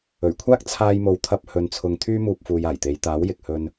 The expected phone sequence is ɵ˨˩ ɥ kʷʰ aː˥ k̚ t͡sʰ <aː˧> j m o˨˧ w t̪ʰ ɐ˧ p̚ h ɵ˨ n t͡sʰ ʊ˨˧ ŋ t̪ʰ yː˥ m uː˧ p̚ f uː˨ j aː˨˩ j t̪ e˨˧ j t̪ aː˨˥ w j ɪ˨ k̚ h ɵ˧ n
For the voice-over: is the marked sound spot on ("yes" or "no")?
yes